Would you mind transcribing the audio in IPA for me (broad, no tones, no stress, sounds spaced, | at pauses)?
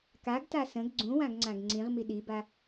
k a ɡ t a s ə̃ ɡ ɡ͡ǀ ũ w ã ɡ ŋ͡ǀ ã ɡ ŋ͡ǀ ĩ ʁ m i ɗ i b a